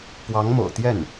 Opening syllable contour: rising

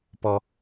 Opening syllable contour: low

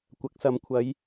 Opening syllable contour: rising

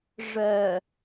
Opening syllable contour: low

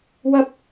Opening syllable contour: high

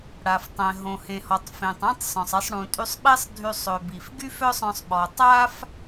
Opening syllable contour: low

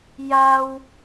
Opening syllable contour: high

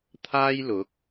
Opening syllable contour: high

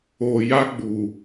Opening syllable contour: low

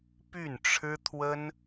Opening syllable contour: falling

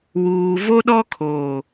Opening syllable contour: low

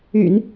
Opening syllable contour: low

